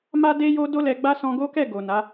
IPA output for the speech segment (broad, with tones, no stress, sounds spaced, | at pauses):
m a˦ d e˦ j o˦ d o˦ l ɛ˧ ɡ͡b a˦ s ɔ̃˧ ɡ o˦ k ɛ˦˨ ɡ o˨ n a˨˦